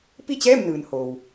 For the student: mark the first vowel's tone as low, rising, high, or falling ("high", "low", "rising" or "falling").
falling